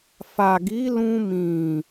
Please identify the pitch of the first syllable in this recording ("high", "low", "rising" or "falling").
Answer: low